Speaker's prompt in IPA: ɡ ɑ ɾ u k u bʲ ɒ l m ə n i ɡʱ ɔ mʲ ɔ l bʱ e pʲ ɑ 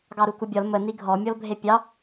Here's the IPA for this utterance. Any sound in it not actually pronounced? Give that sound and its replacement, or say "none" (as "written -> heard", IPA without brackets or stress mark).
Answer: none